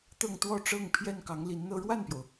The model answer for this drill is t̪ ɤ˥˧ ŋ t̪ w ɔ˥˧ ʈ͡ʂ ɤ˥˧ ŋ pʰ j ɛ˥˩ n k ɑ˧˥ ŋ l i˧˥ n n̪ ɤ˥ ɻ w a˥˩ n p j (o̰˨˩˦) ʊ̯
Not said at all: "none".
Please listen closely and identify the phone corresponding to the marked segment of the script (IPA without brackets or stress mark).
o˩